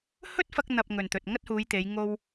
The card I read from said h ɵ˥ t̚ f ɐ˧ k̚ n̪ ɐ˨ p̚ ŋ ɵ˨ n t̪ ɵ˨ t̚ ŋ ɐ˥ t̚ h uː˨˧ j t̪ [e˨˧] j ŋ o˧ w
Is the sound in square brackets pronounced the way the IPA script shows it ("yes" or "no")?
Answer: yes